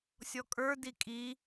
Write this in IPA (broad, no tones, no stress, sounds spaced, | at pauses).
sʲ ɔ kʼ ə˞ d i kʼ i